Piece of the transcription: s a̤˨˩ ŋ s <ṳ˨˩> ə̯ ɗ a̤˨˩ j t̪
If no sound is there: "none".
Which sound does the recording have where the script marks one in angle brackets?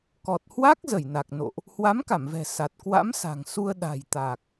u˧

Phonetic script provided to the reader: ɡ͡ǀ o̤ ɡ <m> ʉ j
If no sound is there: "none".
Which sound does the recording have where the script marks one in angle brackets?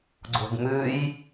m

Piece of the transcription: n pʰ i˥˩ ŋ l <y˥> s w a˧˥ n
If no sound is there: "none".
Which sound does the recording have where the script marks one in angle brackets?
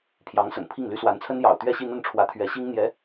y˥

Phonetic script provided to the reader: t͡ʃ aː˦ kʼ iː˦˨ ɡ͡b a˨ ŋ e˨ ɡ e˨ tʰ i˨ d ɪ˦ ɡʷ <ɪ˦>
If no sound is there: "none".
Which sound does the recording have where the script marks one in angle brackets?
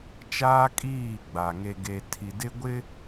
ɪ˦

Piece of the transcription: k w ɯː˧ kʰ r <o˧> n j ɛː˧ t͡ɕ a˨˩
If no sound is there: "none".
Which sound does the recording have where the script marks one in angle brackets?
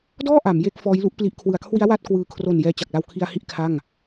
o˨˩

